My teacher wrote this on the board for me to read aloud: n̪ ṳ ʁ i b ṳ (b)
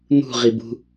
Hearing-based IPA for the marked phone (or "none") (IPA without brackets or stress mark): none